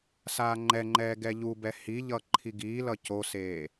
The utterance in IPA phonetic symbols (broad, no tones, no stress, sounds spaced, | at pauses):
s aː ŋ͡ǃ ɛ ŋ͡ǃ ɛː ɡ ɛ ʎ u b ɛ h i ʎ ʌ ǃʰ i ɡ iː l ʌ c o s eː